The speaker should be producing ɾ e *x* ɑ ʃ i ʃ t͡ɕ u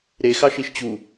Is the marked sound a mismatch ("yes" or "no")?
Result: no